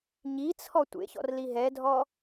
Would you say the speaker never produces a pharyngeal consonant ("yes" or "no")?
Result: yes